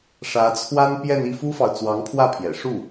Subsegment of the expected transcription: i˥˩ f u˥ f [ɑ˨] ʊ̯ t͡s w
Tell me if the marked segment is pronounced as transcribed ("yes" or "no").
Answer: yes